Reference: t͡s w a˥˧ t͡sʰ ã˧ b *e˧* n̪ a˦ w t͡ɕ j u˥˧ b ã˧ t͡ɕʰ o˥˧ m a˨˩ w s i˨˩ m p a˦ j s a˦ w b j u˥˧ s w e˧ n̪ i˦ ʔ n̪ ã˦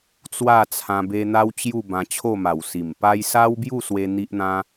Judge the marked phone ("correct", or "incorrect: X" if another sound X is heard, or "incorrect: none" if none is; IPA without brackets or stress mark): correct